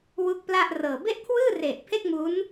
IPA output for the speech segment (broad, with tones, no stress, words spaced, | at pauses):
wu˦˥k̚ pla˥˩ʔrɤː˨˩ be˥˩ʔkʰwɯː˥˩ re˨˩ʔ pʰe˥˩k̚mu˦˥n